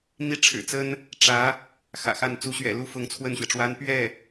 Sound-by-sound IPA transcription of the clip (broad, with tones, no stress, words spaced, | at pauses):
n̪i˥˩ʈ͡ʂʰɻ̩˨˩t͡sə˥n | ʈ͡ʂä˧˥ | xä̰˨˩xa˥˩n t͡su˧˥ɕɥɛ̰˨˩lu˥ fʊ˧˥ŋt͡sʰwə˥˩nɕɥɛ˩ʈ͡ʂwa˥n pɥɛ˥˩